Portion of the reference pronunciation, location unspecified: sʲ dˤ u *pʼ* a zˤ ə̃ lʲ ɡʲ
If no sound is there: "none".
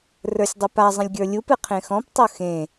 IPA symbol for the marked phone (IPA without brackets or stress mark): p